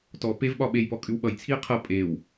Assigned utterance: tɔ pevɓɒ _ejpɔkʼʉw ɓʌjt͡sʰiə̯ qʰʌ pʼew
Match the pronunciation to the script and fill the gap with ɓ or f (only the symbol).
ɓ